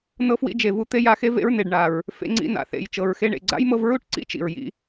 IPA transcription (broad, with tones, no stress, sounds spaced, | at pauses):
n ɤ˦ f w ḭ˦ d͡ʒ e˨ v u˦ t̪ e˦ j a˧ x e˦ v ḛ˦ ɹ n e˨ ɖ ɳ a˨ ɹ | f ḛ˧ ŋ͡ǀ ḭ˧ n a̰˨ θ ḛ˨ j t͡ʃ ɤ˨ ɹ x e˧ ɳ ḛ˨ ɡ͡ǀ a̰˦ j m ɤ˧ v ɹ u˦ ʈ ǀ ḭ˦ t͡ʃ ḭ˨ ɹ j ḭ˧